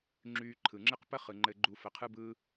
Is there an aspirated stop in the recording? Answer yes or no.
yes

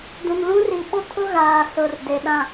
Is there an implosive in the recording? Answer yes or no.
yes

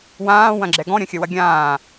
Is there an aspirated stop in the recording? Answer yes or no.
no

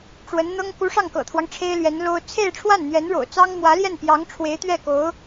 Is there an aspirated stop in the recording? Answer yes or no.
yes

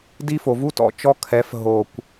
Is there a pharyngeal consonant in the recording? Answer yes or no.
no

